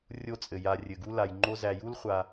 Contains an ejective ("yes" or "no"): yes